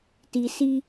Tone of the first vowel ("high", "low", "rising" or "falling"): low